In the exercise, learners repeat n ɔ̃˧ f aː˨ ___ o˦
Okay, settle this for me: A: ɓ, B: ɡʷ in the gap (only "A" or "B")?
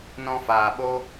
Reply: A